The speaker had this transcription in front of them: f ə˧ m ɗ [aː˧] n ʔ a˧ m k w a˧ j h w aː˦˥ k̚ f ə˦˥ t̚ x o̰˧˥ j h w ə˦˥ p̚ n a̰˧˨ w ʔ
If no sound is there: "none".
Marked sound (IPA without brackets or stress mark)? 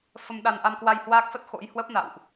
a˧